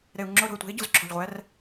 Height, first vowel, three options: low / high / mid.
mid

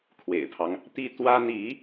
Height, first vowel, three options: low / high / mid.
mid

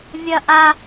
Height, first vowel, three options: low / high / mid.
mid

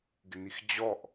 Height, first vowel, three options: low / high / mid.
high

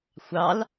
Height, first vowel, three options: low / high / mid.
low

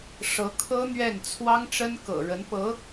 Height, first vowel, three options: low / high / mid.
mid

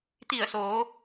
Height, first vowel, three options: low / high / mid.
high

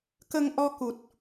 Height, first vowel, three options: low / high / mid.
mid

